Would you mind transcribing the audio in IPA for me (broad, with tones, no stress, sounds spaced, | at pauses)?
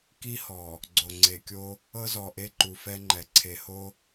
k i˦ h ɔ˨ | ɡ͡ǀ o˨ ŋ͡ǀ e˨ kʲ o˦ | ɤ˦ z ɔ˨ ʔ e˦ ǃ u˨ f ɛ˦ ŋ͡ǃ ɛ˨ ǀʰ e˨ h o˦